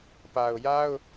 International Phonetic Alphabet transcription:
p a˨ ʊ̯ j a˦ ʊ̯

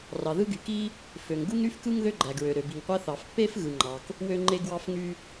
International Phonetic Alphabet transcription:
r ɑ˩ ð ɯ˥ ɡ y˩ k i˥ | f ø˩ ŋ ɡ u˥ ŋ ɾ y˥ f k ɯ˥ ŋ ð ø˥ ɡ͡ǃ æ˩ ɡ ɹ ø˩ ɾ ø˩ b i˩ ŋ qʷ æ˥ θ ɑ˩ f pː e˥ f ɣ ɯ˩ ŋ͡ǃ ɑ˩ k | w ø˥ ŋ͡ǃ e˥ ɡ w ɑ˥ f ŋ y˥

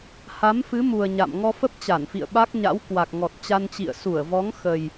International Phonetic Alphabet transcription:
h a˨˦ m f ɨ˨˦ m u˨˩ ə̯ ɲ a̰˧˨ m ŋ ɔ˧ f ə˦˥ p̚ t͡ɕ a˧˩ n f ḭ˧˨ ə̯ ɓ a˦˥ k̚ ɲ a̰˧˥ w k w a˨˩ k̚ ŋ ɔ˨˩ t̚ t͡ɕ a˧ n t͡ɕ ḭ˧˨ ə̯ s u˧˩ ə̯ v ɔ˨˦ ŋ x ə˨˩ j

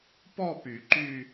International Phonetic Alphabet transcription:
p ɔ˥˧ p y˨˩˦ ǃ y˥˧

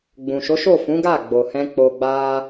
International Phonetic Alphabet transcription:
ɡ͡b ũ˨ ʃ o˨˦ ʃ o˦˨ f ũ˨˦ ɡ a˦˨ ɡ͡b o˨ h ɛ̃˧ k͡p o˧ ɡ͡b a˦

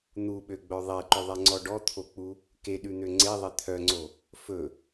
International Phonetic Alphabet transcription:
n̪ u ɓ ø ɡ͡b œ ðˤ e ǃ ɵ ðˤ ɛ ŋ͡ǀ ɔ ɖ ɔ t̪ʰ o k͡p u | k e ɗ ʉ n̪ ø ŋ͡ǀ e ðˤ e t̪ʰ œ ŋ͡ǀ o | f ɵ

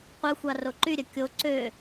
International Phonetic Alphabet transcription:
qʷ œ xʷ ɑ r o ǃ y ɾʲ œ kʲ o ǀ ø

